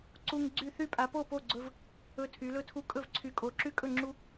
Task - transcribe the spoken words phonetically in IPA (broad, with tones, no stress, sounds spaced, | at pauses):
ǀ u˦ ŋ ɡ͡ǀ y˥˨ θ y˥˨ pʼ a˨˦ p o˥˨ p o˥˨ ɡ͡ǀ ɵ˦ v | ɵ˦ tʰ y˨˦ l ɵ˥˨ tʰ u˦ kʼ ɵ˥˨ v ǀʰ y˨˦ kʼ o˨˦ ǁ y˦ kʼ ɵ˥˨ ŋ͡ǁ u˦